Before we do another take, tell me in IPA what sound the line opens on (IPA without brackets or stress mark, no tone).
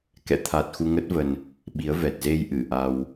k